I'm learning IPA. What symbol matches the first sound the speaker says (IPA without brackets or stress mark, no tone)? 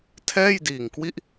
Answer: tʰ